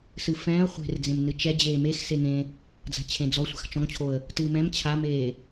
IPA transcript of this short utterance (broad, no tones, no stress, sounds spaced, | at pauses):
s ɨ f ɛ̃ː ə̯ χʷ e̤ r d͡z ẽ m n ɨ t͡ʃ ɛ d͡ʑ eː m e x s e ŋ ẽ | d͡z a̤ t͡ɕʰ ẽ d͡z ɔ sʷ a̤ x t͡ʃ ɔ̃ ŋ t͡ɕʰ o ə̯ | t ɨː m ɛ̃ m t͡ɕʰ a m eː